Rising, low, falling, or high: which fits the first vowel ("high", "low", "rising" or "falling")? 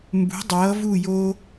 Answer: rising